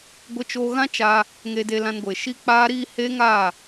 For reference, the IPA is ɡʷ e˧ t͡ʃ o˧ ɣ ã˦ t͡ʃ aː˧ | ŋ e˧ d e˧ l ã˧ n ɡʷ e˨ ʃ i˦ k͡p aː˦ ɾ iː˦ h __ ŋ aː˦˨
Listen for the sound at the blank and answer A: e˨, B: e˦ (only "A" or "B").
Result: B